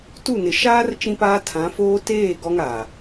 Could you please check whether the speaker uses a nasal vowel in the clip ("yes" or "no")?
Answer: yes